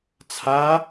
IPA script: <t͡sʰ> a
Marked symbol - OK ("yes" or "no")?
yes